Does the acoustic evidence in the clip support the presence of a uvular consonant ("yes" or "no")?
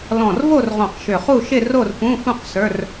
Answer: yes